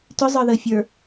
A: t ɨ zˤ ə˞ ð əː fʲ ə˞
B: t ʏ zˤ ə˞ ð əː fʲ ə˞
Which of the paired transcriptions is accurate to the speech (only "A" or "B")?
B